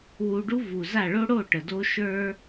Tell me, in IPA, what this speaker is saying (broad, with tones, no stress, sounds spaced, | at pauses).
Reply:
w u˧ ɖ u˦ v u˨ z a˦˨ ɭ o˦ ɽ o˦˨ ʈ ə˨ d o˦ ʃ ə˞˦